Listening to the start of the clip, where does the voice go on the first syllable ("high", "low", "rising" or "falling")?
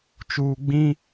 low